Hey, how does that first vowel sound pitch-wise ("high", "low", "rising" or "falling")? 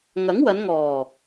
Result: rising